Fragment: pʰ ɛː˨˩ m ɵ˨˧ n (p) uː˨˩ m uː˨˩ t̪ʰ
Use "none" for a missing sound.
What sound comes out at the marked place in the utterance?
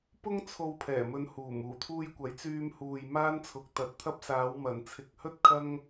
h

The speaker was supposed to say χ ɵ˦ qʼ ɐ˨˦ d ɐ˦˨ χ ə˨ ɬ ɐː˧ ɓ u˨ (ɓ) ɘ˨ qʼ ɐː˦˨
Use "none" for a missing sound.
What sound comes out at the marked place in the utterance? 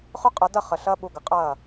ɡ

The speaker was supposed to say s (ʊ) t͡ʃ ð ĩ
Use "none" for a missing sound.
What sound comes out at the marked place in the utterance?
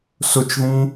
ʊ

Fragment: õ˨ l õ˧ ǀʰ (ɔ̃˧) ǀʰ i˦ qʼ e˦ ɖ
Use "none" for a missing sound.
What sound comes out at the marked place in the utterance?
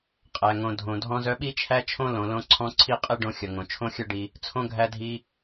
ɔ̃˧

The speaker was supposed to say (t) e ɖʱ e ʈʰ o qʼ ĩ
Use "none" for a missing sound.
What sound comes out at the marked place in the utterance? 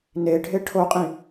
n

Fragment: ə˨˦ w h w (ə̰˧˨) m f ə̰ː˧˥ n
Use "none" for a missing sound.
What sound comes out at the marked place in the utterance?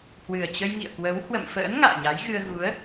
ə̰˧˨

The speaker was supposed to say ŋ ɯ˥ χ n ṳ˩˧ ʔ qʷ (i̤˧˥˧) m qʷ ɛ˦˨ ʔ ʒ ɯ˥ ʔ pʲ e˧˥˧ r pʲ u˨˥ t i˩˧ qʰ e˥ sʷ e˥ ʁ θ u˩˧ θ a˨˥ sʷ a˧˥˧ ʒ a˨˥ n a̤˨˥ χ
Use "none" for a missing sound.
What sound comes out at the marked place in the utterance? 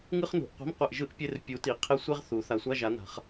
i̤˧˥˧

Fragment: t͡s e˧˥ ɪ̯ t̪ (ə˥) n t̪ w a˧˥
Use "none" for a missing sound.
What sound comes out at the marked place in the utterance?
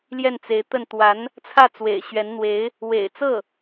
ə˥˩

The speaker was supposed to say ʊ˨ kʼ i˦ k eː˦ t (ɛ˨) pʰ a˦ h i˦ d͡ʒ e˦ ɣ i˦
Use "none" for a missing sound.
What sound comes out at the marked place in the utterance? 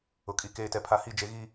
ɛ˨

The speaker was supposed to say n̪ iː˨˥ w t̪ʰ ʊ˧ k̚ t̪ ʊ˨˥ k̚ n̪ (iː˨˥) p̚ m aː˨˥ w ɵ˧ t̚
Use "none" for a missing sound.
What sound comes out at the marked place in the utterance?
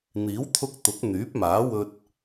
yː˨˥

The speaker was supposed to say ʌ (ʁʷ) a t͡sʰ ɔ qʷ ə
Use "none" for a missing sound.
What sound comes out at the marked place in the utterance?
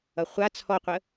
χʷ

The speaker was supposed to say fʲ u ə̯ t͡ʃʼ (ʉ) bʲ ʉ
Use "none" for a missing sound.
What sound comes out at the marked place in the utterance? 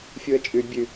ʉ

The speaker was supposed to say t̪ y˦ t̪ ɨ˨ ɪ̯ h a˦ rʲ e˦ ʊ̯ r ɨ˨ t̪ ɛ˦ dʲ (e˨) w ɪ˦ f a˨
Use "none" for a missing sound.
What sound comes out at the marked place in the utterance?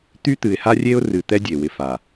e˨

